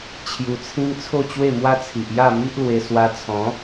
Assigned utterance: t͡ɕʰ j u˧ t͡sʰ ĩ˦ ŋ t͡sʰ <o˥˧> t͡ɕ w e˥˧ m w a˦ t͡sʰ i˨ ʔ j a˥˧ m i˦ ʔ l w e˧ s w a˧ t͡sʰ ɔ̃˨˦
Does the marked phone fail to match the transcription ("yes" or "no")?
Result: no